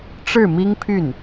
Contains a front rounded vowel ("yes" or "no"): yes